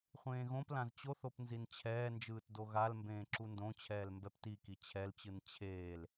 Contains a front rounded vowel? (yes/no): no